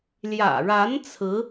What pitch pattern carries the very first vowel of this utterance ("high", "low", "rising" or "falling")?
low